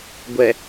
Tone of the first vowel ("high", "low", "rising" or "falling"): low